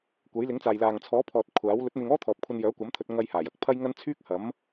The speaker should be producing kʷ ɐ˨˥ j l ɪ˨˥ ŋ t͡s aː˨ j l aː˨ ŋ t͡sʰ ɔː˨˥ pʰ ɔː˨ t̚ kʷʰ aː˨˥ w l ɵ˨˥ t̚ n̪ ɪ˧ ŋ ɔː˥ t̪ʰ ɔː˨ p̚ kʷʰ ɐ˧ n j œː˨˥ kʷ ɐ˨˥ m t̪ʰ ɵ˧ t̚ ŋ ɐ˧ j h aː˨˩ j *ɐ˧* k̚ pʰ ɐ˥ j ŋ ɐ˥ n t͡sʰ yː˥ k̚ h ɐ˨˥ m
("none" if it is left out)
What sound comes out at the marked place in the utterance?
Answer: ɐ˨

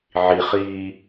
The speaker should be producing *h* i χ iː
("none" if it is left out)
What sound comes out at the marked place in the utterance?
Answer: ʕ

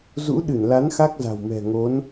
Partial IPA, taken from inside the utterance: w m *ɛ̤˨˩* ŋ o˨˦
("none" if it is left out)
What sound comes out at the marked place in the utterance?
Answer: ɛ̤˨˩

